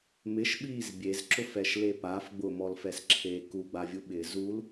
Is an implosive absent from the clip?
no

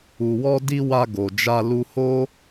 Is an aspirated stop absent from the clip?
yes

